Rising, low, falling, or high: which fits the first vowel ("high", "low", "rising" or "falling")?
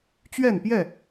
falling